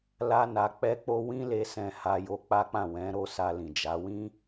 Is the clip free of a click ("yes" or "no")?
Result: yes